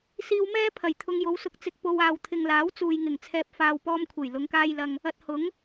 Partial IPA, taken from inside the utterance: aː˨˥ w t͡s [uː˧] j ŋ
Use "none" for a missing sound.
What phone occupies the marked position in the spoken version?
uː˨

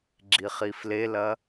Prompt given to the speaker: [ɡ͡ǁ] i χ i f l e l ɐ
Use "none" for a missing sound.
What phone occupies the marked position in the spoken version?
ɡ͡ǁ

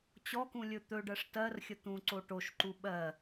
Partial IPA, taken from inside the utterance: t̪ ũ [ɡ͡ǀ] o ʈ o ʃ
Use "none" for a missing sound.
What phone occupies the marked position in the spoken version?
ǀ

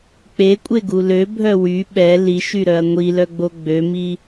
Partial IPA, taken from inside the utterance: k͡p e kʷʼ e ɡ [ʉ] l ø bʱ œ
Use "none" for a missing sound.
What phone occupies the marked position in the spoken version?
u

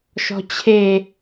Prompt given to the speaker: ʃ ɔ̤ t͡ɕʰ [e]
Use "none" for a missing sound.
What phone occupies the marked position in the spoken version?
e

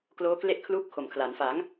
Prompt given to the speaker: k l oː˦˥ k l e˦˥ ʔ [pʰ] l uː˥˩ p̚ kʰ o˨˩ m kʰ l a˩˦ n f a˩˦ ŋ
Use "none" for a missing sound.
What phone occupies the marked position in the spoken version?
kʰ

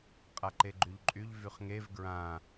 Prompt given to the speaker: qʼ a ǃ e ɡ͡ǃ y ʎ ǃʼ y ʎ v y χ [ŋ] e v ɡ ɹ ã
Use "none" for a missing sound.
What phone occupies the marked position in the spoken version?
ŋ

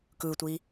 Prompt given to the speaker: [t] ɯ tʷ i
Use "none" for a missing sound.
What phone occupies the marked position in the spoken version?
k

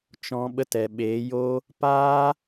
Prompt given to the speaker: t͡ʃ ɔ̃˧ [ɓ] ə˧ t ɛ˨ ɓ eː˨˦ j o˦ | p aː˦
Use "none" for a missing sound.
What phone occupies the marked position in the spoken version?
ɓ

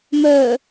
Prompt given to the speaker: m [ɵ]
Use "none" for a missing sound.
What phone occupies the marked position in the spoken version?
œ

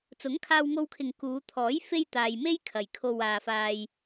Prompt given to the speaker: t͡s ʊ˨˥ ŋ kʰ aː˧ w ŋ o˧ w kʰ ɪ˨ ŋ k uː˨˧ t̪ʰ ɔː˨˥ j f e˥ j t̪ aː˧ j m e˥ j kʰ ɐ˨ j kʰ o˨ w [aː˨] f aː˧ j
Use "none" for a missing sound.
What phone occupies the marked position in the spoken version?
aː˨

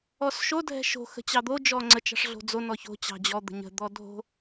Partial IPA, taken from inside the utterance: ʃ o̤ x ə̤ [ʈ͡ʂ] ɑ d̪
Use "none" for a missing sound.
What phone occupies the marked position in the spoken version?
t͡ɕ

